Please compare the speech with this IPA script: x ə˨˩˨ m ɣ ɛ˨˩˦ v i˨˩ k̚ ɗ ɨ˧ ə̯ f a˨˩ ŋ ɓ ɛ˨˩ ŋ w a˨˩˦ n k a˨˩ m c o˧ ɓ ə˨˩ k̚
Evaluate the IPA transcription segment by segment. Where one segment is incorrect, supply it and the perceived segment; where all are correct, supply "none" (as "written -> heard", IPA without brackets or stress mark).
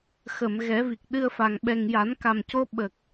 w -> j